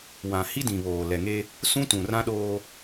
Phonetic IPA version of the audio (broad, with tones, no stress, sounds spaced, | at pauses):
w ã˨ h i˦ d ĩ˨ β oː˨ l ɛ˨ ŋ e˦ | s ũ˦ t ũ˨ r ã˦ ɗ oː˦